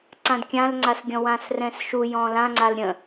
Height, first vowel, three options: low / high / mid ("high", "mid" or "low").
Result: low